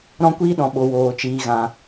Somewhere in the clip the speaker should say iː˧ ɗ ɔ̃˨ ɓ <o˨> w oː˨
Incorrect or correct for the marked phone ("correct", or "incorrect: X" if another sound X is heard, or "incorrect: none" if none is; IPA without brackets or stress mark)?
correct